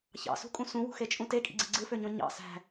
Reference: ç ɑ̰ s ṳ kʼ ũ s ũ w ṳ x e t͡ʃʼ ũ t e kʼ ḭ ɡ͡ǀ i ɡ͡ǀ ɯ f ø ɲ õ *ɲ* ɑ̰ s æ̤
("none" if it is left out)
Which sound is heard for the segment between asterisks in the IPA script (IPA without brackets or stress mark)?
ɲ